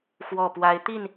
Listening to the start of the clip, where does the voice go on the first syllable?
low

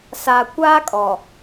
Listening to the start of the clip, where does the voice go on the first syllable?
low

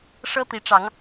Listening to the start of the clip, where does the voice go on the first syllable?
high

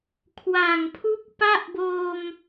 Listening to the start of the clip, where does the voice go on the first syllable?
low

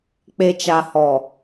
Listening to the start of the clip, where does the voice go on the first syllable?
low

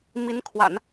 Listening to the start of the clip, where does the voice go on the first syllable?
rising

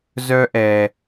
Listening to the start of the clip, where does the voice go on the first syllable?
high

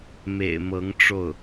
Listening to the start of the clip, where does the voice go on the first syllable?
low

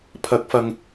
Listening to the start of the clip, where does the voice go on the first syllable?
rising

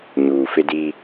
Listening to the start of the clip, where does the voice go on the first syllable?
low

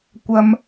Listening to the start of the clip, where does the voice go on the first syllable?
high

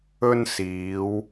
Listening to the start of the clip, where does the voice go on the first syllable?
high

